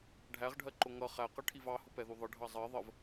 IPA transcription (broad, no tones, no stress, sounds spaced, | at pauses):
ɖʱ æ ʁ ɖʱ ɜ ǃ ʊ ŋ ʌ χ æ q ʌ ʈʰ i v ɑ h ʊ p ɛ ð u ðˤ ɪ ɖʱ ɑ zˤ ɜ ðˤ ə v